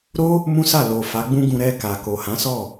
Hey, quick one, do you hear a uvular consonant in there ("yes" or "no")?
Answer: no